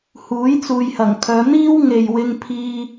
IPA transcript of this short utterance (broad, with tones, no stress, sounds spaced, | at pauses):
h uː˨˥ j t͡s uː˨ j h ɐ˨˩ ŋ kʰ œː˨˧ n̪ iː˥ w ŋ e˨ j w ɪ˧ ŋ pʰ iː˧